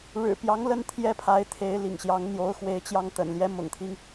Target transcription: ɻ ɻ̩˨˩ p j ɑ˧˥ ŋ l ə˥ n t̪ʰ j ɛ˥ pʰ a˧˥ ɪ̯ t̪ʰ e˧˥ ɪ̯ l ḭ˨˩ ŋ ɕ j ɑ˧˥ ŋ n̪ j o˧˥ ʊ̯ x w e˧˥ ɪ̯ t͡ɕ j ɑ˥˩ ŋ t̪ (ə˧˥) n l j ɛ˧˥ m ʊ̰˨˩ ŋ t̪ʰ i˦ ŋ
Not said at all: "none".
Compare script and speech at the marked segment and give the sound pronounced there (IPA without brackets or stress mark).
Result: ə̰˨˩